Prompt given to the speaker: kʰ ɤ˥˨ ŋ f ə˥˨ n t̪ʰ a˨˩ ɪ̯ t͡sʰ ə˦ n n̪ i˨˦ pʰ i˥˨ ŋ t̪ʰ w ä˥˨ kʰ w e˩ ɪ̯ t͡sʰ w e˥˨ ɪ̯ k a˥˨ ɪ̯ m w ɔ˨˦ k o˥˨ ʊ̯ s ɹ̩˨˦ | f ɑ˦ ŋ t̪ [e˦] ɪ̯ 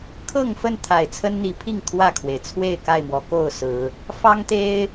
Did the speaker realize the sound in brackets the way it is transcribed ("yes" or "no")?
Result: yes